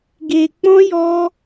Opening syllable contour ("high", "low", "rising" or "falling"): low